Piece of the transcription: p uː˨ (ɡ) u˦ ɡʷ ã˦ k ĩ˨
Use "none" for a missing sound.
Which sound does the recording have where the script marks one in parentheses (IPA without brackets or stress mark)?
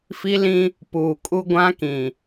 kʼ